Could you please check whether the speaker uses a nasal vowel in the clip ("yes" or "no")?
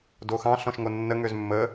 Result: yes